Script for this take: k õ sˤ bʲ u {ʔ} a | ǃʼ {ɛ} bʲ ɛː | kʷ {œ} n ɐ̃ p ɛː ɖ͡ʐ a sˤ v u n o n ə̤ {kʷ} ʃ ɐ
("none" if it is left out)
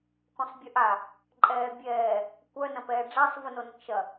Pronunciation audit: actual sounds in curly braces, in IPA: ʔ, ɛː, œ, k

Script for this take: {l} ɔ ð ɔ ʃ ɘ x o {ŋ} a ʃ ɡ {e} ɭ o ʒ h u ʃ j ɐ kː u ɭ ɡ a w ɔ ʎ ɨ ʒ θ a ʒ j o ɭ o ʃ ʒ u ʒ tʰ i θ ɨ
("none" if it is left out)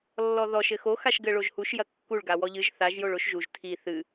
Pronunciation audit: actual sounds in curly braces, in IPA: lː, x, ɘ

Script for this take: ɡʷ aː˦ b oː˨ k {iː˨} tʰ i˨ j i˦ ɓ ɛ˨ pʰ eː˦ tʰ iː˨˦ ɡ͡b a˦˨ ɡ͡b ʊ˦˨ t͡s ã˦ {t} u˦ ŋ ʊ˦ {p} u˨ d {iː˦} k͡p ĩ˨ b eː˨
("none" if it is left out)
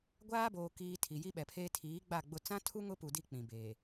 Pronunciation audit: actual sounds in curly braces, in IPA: iː˨, tʰ, p, i˦

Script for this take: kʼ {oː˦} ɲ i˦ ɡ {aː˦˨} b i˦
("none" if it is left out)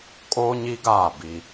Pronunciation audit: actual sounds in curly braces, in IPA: oː˦, aː˦˨

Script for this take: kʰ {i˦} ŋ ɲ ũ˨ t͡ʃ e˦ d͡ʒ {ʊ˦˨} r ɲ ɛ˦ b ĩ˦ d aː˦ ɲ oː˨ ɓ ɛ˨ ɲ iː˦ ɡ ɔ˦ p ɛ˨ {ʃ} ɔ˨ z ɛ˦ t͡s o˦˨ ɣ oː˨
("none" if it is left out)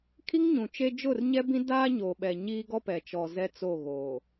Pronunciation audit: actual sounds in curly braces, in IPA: i˦, ʊ˦˨, t͡ʃ

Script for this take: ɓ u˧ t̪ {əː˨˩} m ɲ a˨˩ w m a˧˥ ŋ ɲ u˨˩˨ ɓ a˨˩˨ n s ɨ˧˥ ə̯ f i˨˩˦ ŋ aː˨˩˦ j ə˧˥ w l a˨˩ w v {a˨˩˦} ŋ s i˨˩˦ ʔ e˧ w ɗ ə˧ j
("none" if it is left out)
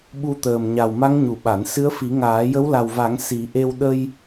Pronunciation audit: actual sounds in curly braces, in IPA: əː˨˩, a˨˩˦

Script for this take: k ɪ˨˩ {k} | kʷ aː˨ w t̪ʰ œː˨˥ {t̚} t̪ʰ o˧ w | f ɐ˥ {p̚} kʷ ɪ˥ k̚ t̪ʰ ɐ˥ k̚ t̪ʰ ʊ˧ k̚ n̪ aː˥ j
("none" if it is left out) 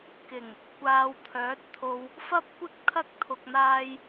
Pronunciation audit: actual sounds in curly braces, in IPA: ŋ, t̚, p̚

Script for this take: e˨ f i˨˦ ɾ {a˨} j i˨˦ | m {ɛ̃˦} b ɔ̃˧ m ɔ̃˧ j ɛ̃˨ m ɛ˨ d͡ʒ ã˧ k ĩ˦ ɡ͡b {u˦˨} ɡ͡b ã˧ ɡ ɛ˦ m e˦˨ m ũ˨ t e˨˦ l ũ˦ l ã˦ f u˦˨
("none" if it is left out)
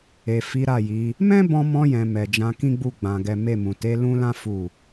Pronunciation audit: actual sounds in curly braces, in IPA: a˦˨, ɛ̃˦, u˦˨

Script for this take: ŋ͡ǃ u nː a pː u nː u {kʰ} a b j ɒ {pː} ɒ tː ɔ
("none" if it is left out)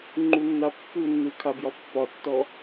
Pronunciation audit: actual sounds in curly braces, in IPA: kʰ, pː

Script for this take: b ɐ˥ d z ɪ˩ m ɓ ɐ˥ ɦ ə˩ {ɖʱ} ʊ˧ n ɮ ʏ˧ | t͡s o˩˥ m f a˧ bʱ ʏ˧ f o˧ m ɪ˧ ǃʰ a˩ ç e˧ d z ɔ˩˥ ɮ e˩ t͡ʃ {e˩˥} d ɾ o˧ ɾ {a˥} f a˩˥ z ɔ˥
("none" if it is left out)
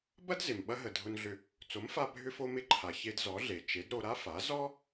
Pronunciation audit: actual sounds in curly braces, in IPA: dʱ, e˩˥, a˥

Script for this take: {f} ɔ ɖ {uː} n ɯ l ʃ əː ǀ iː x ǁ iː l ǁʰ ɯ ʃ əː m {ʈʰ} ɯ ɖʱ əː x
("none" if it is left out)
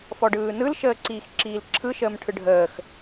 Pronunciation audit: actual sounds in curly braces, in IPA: f, ɯː, ʈʰ

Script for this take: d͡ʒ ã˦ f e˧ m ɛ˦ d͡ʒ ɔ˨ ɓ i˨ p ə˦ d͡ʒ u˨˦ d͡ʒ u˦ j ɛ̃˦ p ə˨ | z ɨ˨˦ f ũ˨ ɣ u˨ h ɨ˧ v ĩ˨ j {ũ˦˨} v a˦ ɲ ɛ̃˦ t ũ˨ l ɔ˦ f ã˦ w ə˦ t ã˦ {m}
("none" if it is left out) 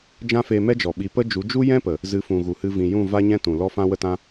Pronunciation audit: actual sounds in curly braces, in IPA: ũ˦˨, none

